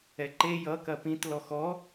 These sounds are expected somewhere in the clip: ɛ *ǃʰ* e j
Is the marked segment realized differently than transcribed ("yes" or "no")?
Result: yes